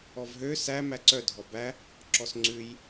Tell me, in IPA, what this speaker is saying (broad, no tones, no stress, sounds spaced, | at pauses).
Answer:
ɔ v ɦ ø s æ m æ ǀ œ dʱ ɔ b æ | ǁ ɔ s ŋ͡ǀ ʉ j